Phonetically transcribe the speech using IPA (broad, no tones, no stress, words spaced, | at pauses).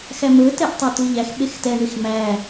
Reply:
xæmɵ tɛʔtˤetuʎæx ɓextɛɳix mæ